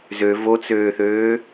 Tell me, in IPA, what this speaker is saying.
z ø v o t͡s øː θ øː

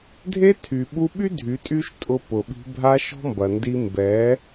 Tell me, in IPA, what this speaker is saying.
dʱ e˦ tʰ y˨ ɓ u˧ ɓ y˦ dʱ y˨˦ tʼ y˦ ʃ tʼ ʊ˧ p ʊ˨ ɓ i̤˧ bʱ a˦ ʃ ɔ̤˦ m b ɐ˨ n d i˧ m b ɛ˨˦

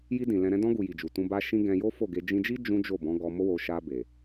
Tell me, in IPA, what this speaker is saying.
j i˧ d ĩ˨ l ɛ̃˧ ɾ ɛ̃˦ d ɔ̃˧ ɡ u˨ j i˨ d͡ʒ u˨ t ũ˧ b a˦ ʃ ĩ˦ ɡ ɛ̃˧ j o˦ f o˦˨ ɡ e˧ d͡ʒ ĩ˧ d͡ʒ i˦ d͡ʒ ũ˦ d͡ʒ o˦˨ b ɔ̃˨˦ ɡ ɔ˧ m o˦ w o˧ ʃ a˧ b e˨

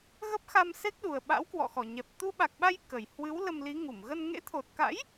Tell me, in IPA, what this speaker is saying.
ɣ ə˦˥ p̚ x a˧ m s e˦˥ k̚ ɗ u˨˩ ə̯ ɓ a̰˧˥ w k w ɔ̰˧˨ x ɔ˧˩ ɲ ɛ˨˩ p̚ t̪ u˧ ɓ a˨˩ k̚ ɓ a˧ j k ə˨˩ j h w ɨ˨˦ w l ə˧ m l i˨˦ ŋ u˧˩ m ɣ ə˧ n ŋ ḛ˧˥ t̪ʰ o˨˩ t̚ k a̰˧˥ j

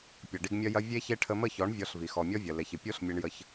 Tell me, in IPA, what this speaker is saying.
pʲ ʌ˨ ɖ i˧ ɡ mʲ ɐ˦ j ɐ˦ vʲ e˦ ç e˦ ʈʰ ə˧ m ə˦˨ ç ɔ˨˦ ɳ vʲ ɔ˧ ɬ v i˨ x ɔ˨ mʲ ɔ˦ vʲ ɐ˨ l e˨ ç ɨ˨ pʲ o˦ ɬ mʲ e˧ ɳ j ə˧ ç

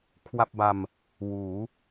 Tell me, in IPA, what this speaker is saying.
kʰ w a˥˩ p̚ b a˧ m | w uː˩˦

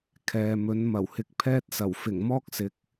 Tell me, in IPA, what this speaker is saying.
kʰ ɛː˨ m ɵ˨˥ n m ɐ˨˩ w h ɪ˧ k̚ pʰ ɛː˥ t̚ s ɐ˨˩ w f ɪ˨˩ ŋ m ɔː˥ k̚ s ɪ˨˥ k̚

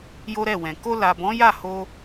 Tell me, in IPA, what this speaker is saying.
j o˦ ɾ ɛ˦˨ w ɛ̃˨ k o˧ l a˨ b ɔ̃˨˦ j a˦˨ h o˧

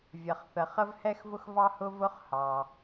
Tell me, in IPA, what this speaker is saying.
vʲ ʌ˩ χ θ ə˩ χ ə˥ v h ɛ˥ x v ʊ˥ x v ɑ˥ h ʊ˥ v ʊ˥ χ h ɑ˩

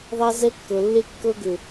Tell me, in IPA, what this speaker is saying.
ðˤ æ˦ z ɛ˦ kː ɤ˨ lː e˦ kː ɤ˦ ɡ ʏ˨

